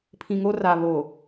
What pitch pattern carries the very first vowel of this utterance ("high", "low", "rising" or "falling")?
low